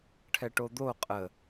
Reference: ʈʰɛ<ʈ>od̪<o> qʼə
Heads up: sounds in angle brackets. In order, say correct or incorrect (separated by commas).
correct, correct